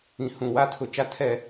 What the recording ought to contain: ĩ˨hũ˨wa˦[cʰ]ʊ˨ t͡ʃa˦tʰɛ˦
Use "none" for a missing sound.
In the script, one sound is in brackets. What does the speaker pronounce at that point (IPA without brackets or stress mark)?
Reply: tʰ